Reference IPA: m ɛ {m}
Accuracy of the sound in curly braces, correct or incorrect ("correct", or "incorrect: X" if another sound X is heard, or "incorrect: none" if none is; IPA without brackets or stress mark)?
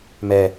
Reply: incorrect: none